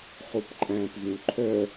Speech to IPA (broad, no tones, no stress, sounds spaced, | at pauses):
χ u p ǃʼ æ̃ p v ũ ǃʰ œ